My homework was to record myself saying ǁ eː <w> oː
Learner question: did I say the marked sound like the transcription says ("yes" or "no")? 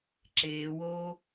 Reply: yes